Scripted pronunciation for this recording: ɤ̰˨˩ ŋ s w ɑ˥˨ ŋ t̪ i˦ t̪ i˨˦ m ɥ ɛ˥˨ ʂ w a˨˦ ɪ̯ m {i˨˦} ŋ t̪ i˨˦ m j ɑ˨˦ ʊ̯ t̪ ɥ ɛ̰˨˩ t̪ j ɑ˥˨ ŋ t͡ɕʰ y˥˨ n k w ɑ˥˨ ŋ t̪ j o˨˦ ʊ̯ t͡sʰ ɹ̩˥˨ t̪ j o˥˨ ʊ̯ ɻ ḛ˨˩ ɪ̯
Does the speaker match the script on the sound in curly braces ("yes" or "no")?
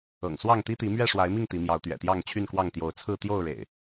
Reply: no